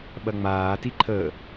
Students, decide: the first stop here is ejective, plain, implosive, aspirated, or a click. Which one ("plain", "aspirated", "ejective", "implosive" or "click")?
implosive